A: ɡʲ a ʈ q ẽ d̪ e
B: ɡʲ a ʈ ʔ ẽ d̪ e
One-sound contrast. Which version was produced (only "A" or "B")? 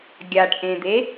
B